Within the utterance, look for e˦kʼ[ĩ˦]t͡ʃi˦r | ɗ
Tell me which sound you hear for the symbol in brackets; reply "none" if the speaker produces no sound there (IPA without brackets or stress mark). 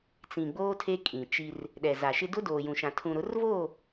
ĩ˨